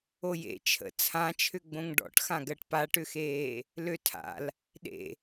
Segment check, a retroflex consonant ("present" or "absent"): present